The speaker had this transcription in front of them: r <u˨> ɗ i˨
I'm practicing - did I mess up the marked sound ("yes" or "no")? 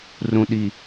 yes